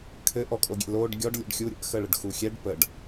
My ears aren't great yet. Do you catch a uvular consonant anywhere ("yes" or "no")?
no